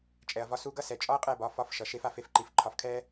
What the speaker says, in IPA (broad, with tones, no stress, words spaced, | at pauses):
t͡ʃʼɛ˨ɐ̯vɒ˧su˧ɡʌ˦ sɛ˨t͡ʃʼɒ˦ɐ̯qʼɛ˦˨ bɒ˧fɒ˦f ʃʌ˨ ʃe˦fa˦f e˦fǃi˧f ǃʰɒ˧fkʰɛ˦